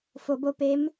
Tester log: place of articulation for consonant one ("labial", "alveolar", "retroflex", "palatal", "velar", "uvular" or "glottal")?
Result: labial